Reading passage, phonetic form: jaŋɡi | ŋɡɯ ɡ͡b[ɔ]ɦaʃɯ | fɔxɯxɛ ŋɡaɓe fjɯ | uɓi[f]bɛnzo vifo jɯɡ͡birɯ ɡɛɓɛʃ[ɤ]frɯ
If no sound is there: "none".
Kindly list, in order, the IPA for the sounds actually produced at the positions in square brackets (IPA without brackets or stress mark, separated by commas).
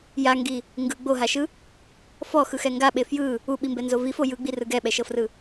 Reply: o, m, ɤ